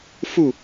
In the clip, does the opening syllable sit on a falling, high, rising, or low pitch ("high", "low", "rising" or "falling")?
falling